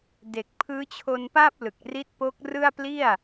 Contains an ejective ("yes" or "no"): no